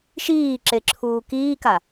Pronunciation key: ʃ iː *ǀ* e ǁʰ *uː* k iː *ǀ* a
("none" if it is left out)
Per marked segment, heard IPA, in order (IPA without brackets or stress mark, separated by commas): ǁ, uː, k